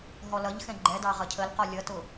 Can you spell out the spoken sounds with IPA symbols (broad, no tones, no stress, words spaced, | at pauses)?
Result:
ɦɔlʌʎxɛ̃ ɡ͡ǃɛdɑ ʁʌcʰəlqɔ lʲʌtʊ